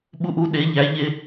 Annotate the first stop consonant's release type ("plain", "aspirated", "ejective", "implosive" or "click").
implosive